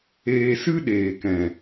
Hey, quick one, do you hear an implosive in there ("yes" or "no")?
yes